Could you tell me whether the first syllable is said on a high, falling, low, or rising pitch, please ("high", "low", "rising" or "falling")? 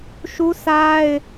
high